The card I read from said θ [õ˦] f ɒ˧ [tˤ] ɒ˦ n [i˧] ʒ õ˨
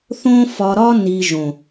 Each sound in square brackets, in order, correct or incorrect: correct, incorrect: ɾ, correct

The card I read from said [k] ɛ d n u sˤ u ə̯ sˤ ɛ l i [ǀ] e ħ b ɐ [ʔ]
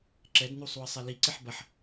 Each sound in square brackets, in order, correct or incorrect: incorrect: ǁ, correct, incorrect: ħ

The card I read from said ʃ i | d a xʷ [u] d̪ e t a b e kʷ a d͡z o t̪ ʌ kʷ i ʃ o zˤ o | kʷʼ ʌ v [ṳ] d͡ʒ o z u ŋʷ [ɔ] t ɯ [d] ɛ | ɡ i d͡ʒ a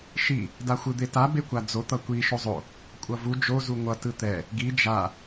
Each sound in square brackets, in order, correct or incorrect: incorrect: ɯ, incorrect: u, incorrect: ʌ, incorrect: t̪

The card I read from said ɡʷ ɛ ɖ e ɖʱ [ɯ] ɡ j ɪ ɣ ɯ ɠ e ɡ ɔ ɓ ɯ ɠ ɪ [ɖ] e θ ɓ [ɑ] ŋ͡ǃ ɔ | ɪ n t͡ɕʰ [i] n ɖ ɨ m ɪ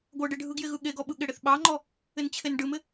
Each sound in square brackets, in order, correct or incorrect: correct, incorrect: ɽ, correct, incorrect: e

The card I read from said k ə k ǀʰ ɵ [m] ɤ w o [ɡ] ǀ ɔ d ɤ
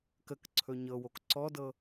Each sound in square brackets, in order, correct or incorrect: incorrect: ɲ, incorrect: k

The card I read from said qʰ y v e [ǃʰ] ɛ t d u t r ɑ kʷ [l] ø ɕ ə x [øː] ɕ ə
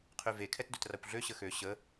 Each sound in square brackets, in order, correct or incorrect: incorrect: kʰ, incorrect: ɮ, incorrect: ø

